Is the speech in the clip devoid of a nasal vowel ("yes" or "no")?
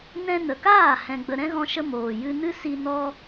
no